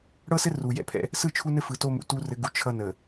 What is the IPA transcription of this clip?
ɽ ɤ˦ s ɘ˦ r u˨ j ɛ̰˦˨ pʰ ɛ̰˦ | s ɯ˦˨ t͡ʃʰ u˦ n ɘ˦ f ɯ˨ t o˦ m ṵ˨ t u˦ r ɘ˨˦ ɡ u˨ t͡ʃʰ ʌ˦ n ə˨

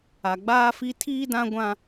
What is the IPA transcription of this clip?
a˨ ɡ͡b aː˦ f i˦ tʰ iː˦ d ã˦ ɡʷ ã˦

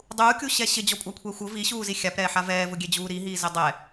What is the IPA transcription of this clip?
dˤ uː kʲ u ɕ ɛ ɕ ɪ d͡ʑ ɔ kʷʼ a kʷʰ ɛː xʷ ʊ v i ɕ uː z i xʲ a p ɾ ɛː ħ a v ɛː v ʊ ɡʲ e d͡ʑ uː ɾ i ɦ iː z ɪ dˤ ɛ

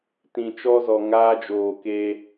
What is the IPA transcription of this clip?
t ĩ˧ t͡ʃ ɔ˦ z ɔ˧ ŋ aː˦ d͡ʒ oː˧ k e˦

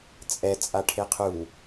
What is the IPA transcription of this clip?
t͡sʼ ɛ t͡sʼ a ʈʰ e qʰ u

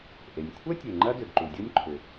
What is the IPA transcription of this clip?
ʔ e˩ nʲ kʷʰ ɐ˥ tʲ e˩ ŋ͡ǃ ɐ˥ d ʏ˩ ɡ ǃ u˩ dʲ o˥ nʲ ǃʰ ʏ˩

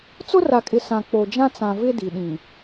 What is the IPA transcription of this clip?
t͡s ʊ˦ r a˨ kʼ ɪ˨ s ã˨ k͡p o˨ d͡ʒ ã˦ t͡s ã˨ v ɪ˦ d i˨ ɗ ĩ˨

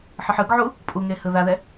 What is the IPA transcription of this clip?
ħ ɯ ħ ɯ ɡ ʕ u | pʼ u ŋ e h ɯ ð a ð ɛ

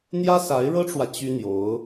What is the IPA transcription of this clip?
n̪ j ä˥ s a˧˥ ɪ̯ ɻ ɤ˥ ʈ͡ʂ w ä˨ t͡ɕ y˥ n̪ j o˧˥ ʊ̯

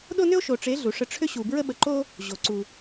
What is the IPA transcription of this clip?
ɗ o˦ n ʏ˦ o̯ ʃ o˨ ʈ͡ʂ e˨˦ ɮ u˨˦ ʂ ə˦ ʈ͡ʂʰ ʏ˦ ɕ u˨ b ɹ ə˦ ɓ ə˨ ǃ o˦ | ʑ o˨ ǀ u˨

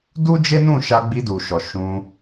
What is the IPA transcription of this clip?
d u˦ d͡ʒ e˦ n ũ˦˨ ʃ a˧ ɡ͡b i˧ d u˨ ʃ ɔ˨ ʃ ũ˧

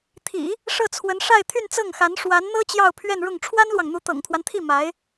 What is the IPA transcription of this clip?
t̪ʰ ḭ˨˩˦ | ʂ ɤ˥˩ t͡sʰ w ə˧˥ n ʂ a˥˧ ɪ̯ t̪ʰ y˥˧ n t͡s ɤ˥˩ ŋ x a˧˥ n ʂ w a˧˥ n n̪ ɤ˥ t͡ɕ j ɑ˥˧ ʊ̯ pʰ ɥ ɛ˥˧ n ɻ ʊ˥˩ ŋ ʈ͡ʂʰ w a˥ n l w ɑ˨ ŋ n̪ u˧˥ t̪ ɤ̰˨˩ ŋ t̪ʰ w a˦ n t̪ʰ i˥˩ m a˧˥ ɪ̯

